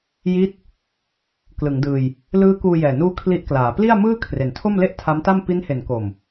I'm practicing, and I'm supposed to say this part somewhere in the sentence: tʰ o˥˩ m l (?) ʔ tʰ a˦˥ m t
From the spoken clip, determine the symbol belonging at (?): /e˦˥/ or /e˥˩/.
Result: e˥˩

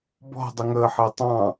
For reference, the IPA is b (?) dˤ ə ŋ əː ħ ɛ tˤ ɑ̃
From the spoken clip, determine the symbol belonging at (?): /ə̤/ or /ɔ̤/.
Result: ɔ̤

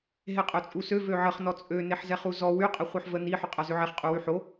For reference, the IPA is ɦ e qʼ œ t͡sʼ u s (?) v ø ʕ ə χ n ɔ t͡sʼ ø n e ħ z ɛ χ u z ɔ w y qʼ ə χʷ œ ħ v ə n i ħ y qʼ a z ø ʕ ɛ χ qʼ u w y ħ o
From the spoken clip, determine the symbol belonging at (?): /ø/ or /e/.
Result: ø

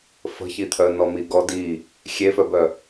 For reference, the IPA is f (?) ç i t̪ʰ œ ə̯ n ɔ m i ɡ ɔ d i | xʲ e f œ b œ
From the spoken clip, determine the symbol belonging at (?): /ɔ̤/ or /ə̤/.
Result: ə̤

